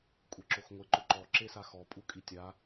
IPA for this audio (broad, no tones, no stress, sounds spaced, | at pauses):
kʷʼ e ǁ o x ŋʷ ɪ ǃ ʊ ǃ ɔ ǁ e s a x ɔ pʼ u kʼ i tʲ a